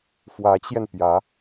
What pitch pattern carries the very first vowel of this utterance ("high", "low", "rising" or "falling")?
rising